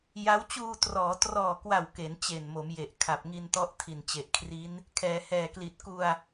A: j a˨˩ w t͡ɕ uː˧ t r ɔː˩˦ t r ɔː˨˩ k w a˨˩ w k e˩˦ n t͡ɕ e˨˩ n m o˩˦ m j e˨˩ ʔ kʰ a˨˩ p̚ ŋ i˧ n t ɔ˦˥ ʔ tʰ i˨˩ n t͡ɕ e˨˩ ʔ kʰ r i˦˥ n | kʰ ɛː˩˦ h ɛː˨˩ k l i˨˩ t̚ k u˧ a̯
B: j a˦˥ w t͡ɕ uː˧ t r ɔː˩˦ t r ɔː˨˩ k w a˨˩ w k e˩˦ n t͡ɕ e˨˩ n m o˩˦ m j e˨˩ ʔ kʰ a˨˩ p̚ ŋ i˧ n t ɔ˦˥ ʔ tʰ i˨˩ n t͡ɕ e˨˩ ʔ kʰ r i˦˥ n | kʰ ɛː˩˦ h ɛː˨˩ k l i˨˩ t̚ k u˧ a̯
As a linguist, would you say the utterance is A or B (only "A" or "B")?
B